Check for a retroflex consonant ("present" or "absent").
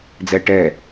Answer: present